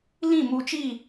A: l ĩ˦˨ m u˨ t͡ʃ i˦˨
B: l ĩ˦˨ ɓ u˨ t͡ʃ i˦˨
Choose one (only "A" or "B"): A